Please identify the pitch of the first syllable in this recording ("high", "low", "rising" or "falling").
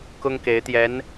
high